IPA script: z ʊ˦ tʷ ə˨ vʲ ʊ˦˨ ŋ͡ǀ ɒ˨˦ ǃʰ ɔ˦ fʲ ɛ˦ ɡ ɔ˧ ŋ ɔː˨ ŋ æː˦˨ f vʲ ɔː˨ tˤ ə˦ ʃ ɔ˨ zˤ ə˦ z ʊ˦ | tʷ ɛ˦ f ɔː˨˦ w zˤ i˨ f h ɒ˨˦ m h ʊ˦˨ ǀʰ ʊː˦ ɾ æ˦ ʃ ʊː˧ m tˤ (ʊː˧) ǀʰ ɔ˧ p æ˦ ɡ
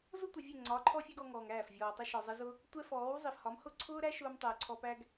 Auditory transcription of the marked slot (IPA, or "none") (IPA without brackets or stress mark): ʊː˨